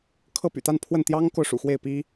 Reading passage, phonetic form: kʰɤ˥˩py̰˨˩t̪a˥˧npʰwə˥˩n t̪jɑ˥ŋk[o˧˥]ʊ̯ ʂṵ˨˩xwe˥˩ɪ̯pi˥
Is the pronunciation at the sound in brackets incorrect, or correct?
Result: incorrect